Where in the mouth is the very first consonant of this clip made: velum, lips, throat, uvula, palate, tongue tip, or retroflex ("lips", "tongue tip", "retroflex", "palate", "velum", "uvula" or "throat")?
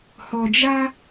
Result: throat